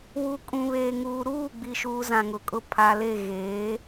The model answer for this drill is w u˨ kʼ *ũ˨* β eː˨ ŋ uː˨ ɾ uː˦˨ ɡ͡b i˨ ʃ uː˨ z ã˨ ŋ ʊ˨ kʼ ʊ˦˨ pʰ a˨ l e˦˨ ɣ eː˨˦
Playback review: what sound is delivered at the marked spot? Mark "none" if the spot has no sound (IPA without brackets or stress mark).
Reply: ũ˨